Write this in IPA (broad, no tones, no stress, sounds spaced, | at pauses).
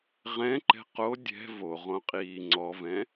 ʁ ɛ̃ ǃ ɛ̤ q o dʲ ɛ̤ v o ʁ õ qʼ iː ŋ͡ǀ ɔ v ɛ̃